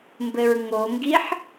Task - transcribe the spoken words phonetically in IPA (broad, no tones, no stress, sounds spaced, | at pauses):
m b ɘ ɹ ŋ o ŋ ɡ i ħ